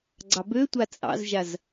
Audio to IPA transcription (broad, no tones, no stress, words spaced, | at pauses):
ɡ͡ǀɑbøtʷa t͡sʼɑ̰zʒaz